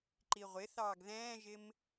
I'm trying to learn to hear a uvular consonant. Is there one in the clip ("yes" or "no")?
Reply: yes